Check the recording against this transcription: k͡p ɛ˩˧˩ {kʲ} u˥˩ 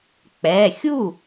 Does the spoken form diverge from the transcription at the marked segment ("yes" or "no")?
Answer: yes